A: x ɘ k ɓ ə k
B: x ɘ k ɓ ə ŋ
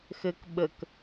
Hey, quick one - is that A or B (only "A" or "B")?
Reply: A